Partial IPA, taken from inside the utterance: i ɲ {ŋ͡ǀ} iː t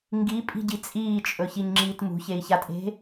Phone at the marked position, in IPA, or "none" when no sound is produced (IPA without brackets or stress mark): ŋ͡ǁ